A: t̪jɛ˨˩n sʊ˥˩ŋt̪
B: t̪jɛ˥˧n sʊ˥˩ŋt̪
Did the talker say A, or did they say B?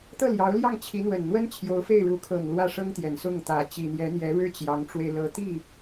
A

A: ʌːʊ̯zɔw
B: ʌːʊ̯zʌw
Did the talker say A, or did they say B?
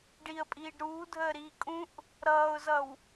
B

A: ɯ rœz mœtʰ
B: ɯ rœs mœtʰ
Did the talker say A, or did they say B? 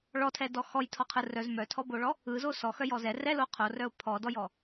A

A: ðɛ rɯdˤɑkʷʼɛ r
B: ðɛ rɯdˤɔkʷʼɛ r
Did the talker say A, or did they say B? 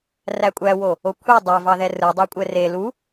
A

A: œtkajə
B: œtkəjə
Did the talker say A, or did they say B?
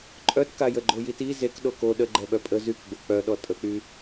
A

